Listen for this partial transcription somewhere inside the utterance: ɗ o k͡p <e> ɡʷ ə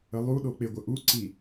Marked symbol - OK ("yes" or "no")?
yes